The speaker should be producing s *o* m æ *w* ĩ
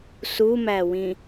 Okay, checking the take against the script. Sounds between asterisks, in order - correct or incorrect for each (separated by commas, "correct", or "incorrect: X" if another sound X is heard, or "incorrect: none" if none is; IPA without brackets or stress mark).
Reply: incorrect: u, correct